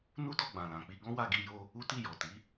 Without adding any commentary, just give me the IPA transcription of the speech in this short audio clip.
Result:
n u˦ d ɔ˦˨ ɡ͡b ã˨ l ã˨ k͡p i˧ ɡ ɔ̃˦ w a˧ ɡ i˧ j o˧ | u˦ t i˦˨ j ɔ˨ t i˨˦

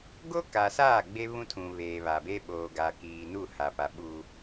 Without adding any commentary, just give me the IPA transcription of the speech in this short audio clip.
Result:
ɡ o˦ k a˨ s aː˦˨ ɡ͡b e˦ β ũ˦ tʰ ũ˨ β eː˨ β a˨ b e˦ ɓ oː˨ ɡ a˨ k iː˨ n u˦˨ h a˨ p a˨ ɓ uː˦

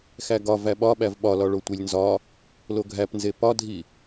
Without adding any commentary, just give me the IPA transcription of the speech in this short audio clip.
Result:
x æ ɡ ɒ v æ ɓ ɒ ɓ æ v ɓ ɒ l ɒ ɭ o tʷ e lʲ n z ɒ | l o ɡʱ æ p n z e p ɒ dʱ i

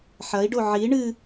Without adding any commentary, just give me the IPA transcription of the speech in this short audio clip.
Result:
ħ ɐ i̯ ɖ o ʕ i ɳ ɨ

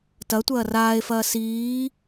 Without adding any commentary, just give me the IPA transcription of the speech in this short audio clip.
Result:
t ɐ tʷ ɐː r aː e̯ f ɐː s iː

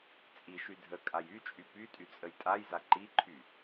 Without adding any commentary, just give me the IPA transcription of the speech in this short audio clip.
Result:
t͡sʼ i ʃ y dʱ ə kʼ a j y t͡ʃʼ y p y tʼ y t͡sʼ ə j tʼ a j z a ǃ i ǃʰ y

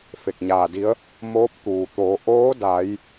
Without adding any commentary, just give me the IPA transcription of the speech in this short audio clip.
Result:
f e˧˩ k̚ ɲ aː˧˩ d i˧˥ ə̯ | m oː˧˥ p̚ t̪ uː˩ t̪ oː˩˧ ʔ oː˧˥ d a˩˧ j

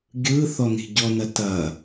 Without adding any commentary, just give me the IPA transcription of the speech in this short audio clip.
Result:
ɡʲ ɯ θ ɔ n i̤ ɟ ɔ n ɐ t ɐ

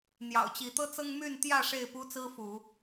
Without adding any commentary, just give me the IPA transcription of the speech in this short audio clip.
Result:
n̪ j ɑ̰˨˩ ʊ̯ t͡ɕ i˨˦ t̪ ɤ˦ t͡s ɤ˦ ŋ m y˥˨ n t̪ j ä˥˨ ʂ e˥˨ ɪ̯ p u˦ t͡s ɹ̩˦ f u˨˦

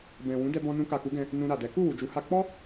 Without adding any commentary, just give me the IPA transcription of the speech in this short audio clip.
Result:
b ɛ̃˨ w ũ˨˦ d ɛ˧ b ɔ̃˧ n ũ˧ k a˨ k u˨˦ ɡ ɛ̃˧ | n ũ˧ ɾ a˨ d ɛ˨˦ k u˦˨ w u˨ d͡ʒ u˨˦ h a˧ k͡p ɔ˦

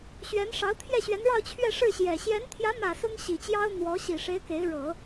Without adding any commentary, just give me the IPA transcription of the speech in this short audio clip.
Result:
ɕ ɥ ɛ˧˥ n ʂ ɑ˧˥ ʊ̯ t̪ʰ j ɛ˥˩ ɕ ɥ ɛ˧˥ n ɻ ɑ˥˧ ʊ̯ t͡ɕʰ ɥ ɛ˥˧ ʂ ɻ̩˥˩ ɕ j ɛ˨˩ ɕ j ɛ˧˥ n t̪ʰ j ä˧˥ m ä˨˩ s ʊ˥ ŋ ɕ i˨˩ t͡ɕ j ɑ˥ ʊ̯ n̪ w ɔ˧˥ ɕ i˨˩ ʂ e˧˥ ɪ̯ k e˧˥ ɪ̯ ɻ ɤ˨˩˦

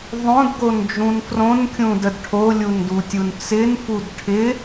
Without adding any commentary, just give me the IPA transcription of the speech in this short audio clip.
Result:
ðˤ õ d ɡ o n d͡ʒ ũ n f r õ n kʲ ũ d ə d ʈʰ o lʲ u n d u tʲ u n t͡s ɪ n f u d ʈʰ ɪ

